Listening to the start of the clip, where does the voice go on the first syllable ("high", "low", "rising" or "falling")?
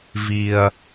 low